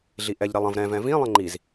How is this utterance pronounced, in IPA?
ɮiʔɛʎ ɾɛlˠə̃v ɾɛ̃ vɛ̃vĩ lˠə̃ŋ͡ǃiz

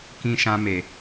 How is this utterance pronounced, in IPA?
kĩ˧ʃã˧me˨

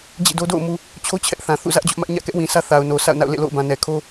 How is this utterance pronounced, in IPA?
d͡ʑḭ˦˨do˦ do̰˦˨ʊ̯mu˨ | t͡ɕʰo˦ t͡ɕʰɛ˦ʔθã˨ θṵ˦˨zä˦ʔd͡ʑʊ˦ʔmä˦ʔ ɲä̰˦˨kɛ˦ʔwĩ˨sʰä˦ θa˨ʊ̯ no˨sʰa̰˦˨ʊ̯na̰˦˨ʊ̯ lḛ˦˨lo̰˦˨ʊ̯bã˨ nɛ˨kʰo˦

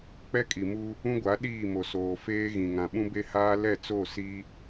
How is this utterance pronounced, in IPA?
k͡pɛ˦kʼi˨mu˦ | ũ˦ɡʷa˨˦ ɗiː˦˨mo˨ soː˨feː˦ɣĩ˨ŋã˨ ɓũ˦be˦haː˦ lɛ˦˨t͡so˦˨ si˦

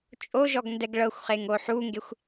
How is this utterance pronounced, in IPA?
t͡ʃʼoʒɔɡ ndɛɡɭɤxʷχeŋ oħuŋɡexʷ

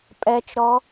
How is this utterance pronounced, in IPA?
pʼɛt͡ʃɾɔ

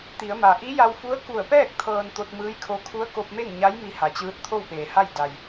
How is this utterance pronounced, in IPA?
t̪i˩˧ə̯ma˩ ʔi˧˥ja˧wfu˧˥ə̯ ku˧˩ə̯pɛː˥˨k̚ t̪ʰɤː˧nt̪o˧t̚mɯː˧˥jkʰo˧˥ kʰu˧˥ə̯ko˧p̚me˥˨ŋɲa˧˥j mi˧ha˩˧t͡ɕɯː˧˥t̚ t̪ʰo˥˨wpeː˩ha˥˨j da˩j

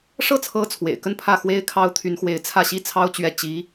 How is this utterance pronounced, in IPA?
ʂɤ˥˩t͡sʰɤ˧˥ t͡sʰwḛ˨˩ɪ̯kə˥˧npʰä˥˩ xwe˥ɪ̯kʰɑ˥ʊ̯t̪ʰy˧˥nxwe˧˥ɪ̯ t͡sʰä˥˩ɕi˥t͡sʰɑ˥ʊ̯ t͡ɕɥɛ˥˩ t͡ɕi˧˥

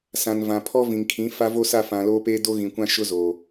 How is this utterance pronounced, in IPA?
sã˨nvã˨pʰɔ˦ vĩ˨ŋkʰĩ˨˦ fa˦vo˦sa˦˨ fã˨loː˦peː˦ do˦ɣĩ˨kʷã˦ ʃʊ˦zo˨

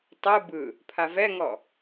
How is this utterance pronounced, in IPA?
tˤɯ bɯ | pʰavɛŋɔ

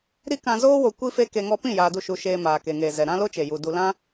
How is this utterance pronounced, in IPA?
ɾi˦kã˧zoː˦ wo˧kʷi˦fe˦ ke˧ ŋɔ˧pĩ˦˨ jaː˧du˦˨ʃu˧ ʃeː˧maː˨ ke˨ŋeː˨zɛ˨ ɾã˦lo˦t͡ʃe˨ ju˨ du˨lã˦

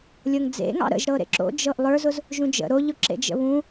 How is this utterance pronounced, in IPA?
lʲɤŋd͡zḛŋɑ̰ ɾə̰ʒɾɤɾḛ ǁo̰d͡ʒɤʔ lˠə˞zʊz | ʒũd͡ʒə̰ ɾoʎʊ ǁḛd͡ʒə̰βũ

